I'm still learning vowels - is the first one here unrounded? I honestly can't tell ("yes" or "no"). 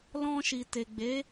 no